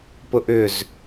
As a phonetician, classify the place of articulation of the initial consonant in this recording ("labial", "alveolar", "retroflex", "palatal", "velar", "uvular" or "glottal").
labial